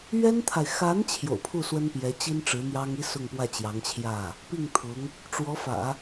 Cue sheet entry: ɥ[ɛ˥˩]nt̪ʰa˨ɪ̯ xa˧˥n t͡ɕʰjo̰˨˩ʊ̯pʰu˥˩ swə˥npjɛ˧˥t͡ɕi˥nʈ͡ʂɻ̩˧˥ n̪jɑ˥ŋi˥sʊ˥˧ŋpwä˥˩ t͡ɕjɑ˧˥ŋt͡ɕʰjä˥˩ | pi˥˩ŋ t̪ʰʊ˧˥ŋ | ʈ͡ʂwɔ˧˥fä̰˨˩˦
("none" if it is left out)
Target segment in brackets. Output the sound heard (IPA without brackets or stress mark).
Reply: ɛ˥